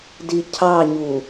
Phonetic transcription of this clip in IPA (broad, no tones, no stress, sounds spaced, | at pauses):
d i cʰ ɑ ɲ u